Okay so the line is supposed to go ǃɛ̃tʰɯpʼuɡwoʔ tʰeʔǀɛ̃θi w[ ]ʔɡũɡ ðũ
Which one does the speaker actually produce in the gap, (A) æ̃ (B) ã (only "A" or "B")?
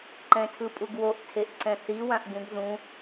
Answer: B